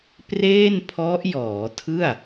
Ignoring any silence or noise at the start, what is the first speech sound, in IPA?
p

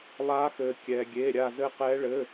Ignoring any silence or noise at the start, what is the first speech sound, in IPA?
lˠ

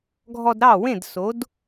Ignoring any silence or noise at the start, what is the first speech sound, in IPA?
ɡʱ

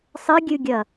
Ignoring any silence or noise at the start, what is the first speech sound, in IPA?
sˤ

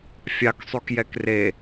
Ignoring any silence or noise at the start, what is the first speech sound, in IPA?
fʲ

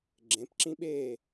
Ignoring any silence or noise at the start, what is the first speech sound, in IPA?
ɡ͡ǁ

